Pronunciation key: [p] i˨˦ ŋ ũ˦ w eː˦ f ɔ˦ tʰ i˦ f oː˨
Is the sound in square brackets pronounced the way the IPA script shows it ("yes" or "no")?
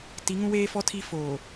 no